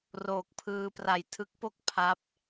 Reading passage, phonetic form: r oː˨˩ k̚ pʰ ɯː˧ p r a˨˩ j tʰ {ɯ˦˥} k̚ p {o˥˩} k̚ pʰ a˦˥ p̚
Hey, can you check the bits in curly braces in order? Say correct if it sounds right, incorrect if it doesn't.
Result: correct, correct

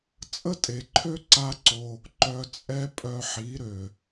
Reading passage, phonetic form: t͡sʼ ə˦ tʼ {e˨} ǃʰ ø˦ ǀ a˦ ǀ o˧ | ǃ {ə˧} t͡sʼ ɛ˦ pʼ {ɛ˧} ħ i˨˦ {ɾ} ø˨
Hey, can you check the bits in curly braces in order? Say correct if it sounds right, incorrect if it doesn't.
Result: correct, incorrect: œ˧, incorrect: œ˧, correct

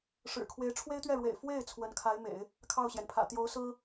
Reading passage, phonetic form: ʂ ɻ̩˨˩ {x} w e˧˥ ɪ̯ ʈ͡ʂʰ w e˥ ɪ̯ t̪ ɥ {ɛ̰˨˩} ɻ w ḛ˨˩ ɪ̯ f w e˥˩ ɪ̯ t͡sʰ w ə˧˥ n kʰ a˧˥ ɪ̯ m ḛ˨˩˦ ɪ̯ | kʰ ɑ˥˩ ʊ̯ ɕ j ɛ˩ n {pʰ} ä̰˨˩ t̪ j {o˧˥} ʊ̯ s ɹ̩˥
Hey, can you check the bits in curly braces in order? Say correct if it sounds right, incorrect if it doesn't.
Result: incorrect: kʰ, incorrect: ɛ˥˩, correct, correct

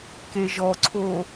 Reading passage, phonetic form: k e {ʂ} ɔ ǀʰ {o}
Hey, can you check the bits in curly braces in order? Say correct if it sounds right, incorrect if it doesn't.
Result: incorrect: ʒ, correct

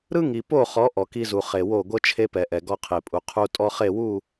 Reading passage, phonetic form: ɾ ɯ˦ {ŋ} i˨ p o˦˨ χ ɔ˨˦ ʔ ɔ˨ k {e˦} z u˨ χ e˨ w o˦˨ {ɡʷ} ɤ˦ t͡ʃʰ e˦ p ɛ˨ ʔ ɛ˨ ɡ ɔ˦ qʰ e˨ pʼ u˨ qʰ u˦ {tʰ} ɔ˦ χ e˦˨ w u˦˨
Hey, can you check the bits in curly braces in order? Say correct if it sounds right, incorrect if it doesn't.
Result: correct, incorrect: i˦, correct, incorrect: tʼ

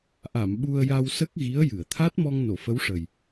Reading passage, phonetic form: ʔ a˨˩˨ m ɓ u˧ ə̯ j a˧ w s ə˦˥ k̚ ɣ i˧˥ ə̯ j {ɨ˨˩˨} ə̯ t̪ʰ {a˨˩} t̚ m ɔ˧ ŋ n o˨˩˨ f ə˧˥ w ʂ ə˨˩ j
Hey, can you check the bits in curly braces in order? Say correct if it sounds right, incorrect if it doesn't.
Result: correct, incorrect: a˦˥

